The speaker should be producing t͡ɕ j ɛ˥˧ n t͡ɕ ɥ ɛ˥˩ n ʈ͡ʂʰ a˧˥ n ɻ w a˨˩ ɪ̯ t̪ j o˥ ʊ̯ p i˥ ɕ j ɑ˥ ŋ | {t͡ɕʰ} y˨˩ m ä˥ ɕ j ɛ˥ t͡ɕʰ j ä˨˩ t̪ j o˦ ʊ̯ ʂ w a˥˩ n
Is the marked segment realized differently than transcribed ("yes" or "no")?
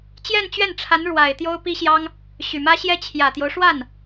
yes